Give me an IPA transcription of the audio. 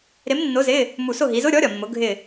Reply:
ɾɪ˨˥mnːʊ˨˥ zɪ˧˥˧ | mu˧˩sʊ˥˨ ɦi˩˧zʊ˧˥˧ ɾʲɔ˨˥ɾʲɒ˩mːʊ˩˧ ɡʱɪ˧˩

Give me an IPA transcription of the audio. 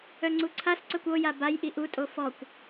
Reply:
œŋ͡ǀuǀʰasǀœkʷ oja bajʔi ʔutʼo fɔkʷ

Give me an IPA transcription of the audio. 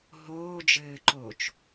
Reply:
ɦoːd͡ʒɘːǃoːt͡ʃ

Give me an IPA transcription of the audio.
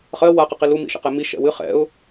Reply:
χɜ waqəqi lumḭʃə̰qɛ mi ʃɛ̰wɨ χɛ̰ʊ̯

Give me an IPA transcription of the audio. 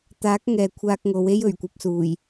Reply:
t̪aː˨˥k̚ ŋɛː˨kʷʰaː˧k̚ŋo˨˧w e˥jɵ˨˩ɥkʷɐ˨p̚suː˨˩j

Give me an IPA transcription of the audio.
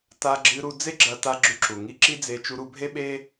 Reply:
ta˧ɡ͡ǁɨ˧ɾu˧ d͡ze˦ɡ͡ǁɐ˧ta˧ ɡ͡ǁʉ˧ǁu˨ ŋi˧ǁi˦d͡ze˧ t͡ʃu˧ɾu˧bʱe˦ɓe˦

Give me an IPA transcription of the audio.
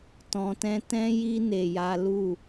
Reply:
tɔ̃˧tɛ̃˦ tɛ̃˦ji˦ ne˧ja˦ lu˦˨

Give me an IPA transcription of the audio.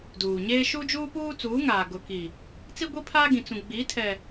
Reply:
duː˨ɲeː˦ ʃu˦d͡ʒuː˦puː˦t͡suː˨˦ ŋaː˨ɡʊ˨ki˨ | t͡si˦ɡʷi˦pʰaː˦ ɡĩ˨t͡sũ˨ ɡ͡bi˨˦ tʰɛ˨

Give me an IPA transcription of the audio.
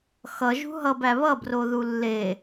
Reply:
xʌ ʒṳɦʌb æβʌ broðulːe

